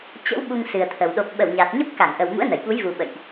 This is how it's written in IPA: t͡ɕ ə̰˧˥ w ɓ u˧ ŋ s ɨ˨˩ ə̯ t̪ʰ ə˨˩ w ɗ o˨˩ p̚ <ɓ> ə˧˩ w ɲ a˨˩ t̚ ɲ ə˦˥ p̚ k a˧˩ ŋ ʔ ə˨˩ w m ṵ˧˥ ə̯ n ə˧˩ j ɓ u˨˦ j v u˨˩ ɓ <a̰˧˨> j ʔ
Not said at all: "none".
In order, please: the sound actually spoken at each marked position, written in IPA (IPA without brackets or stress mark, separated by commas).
ɓ, ə̰˧˨